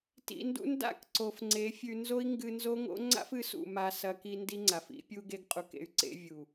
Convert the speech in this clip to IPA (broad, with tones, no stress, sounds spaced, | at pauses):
t ḭ˨ n d ṵ˧ n d a̰˦˨ k ǀ o˨ f ŋ͡ǀ e˨˦ fʲ ʉ˧ n z o˦ i̯ ŋ ɡ ɨ˧ n z o˦ ŋ o̰˦ ŋ͡ǀ a̰˦ f ɨ˨˦ s ṵ˨ m a˧ s ɐ˧ k i˧ n d i˦ ŋ͡ǀ a˨ f ḭ˨˦ pʲ u˧ ɡ e˧ ɡ qʼ u˧ k ḛ˧ y̯ ǀ ḛ˧ vʲ u˨